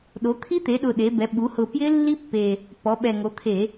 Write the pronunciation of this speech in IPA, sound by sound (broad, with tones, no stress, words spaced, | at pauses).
ɗo˩˧t̪ʰi˦˥t̪e˩˧ɗʊ˨˩ ɗe˩˧bɛ˩˧ ɓu˩˧hʊ˨˩ pjɪ˦˥lːi˦˥pːe˨˩ | pɔ˩˧ɓɛ˨˩ŋo˩˧t̪ʰe˧˩˧